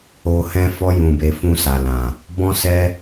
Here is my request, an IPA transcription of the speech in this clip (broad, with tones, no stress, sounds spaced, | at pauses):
o˧ h ɛ̃˧ f ɔ˧ j ũ˨ b e˨ f ũ˧ s a˨ l ã˨ | b ɔ̃˧ s ɛ˧